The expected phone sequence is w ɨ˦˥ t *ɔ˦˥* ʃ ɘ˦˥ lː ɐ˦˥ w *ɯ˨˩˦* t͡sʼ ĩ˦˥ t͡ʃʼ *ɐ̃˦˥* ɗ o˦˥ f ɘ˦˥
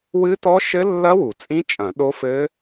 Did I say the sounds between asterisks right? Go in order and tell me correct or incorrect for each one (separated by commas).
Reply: correct, incorrect, incorrect